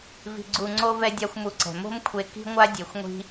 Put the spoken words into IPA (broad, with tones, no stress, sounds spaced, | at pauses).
v i̤˧ ɡ͡ǀ u˧ ŋ͡ǀ o˦ v ɛ˦ dʲ a˦ xʷ m u˧ ǀ ɛ̤˨ m o̤˦ m kʷʰ e˧ k i̤˦ ŋʷ a˦ dʲ e˧ xʷ ŋʷ i̤˦